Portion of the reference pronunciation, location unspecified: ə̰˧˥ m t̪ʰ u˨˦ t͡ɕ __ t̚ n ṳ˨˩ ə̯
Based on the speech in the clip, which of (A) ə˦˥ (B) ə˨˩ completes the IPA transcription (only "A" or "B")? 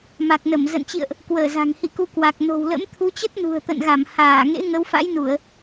A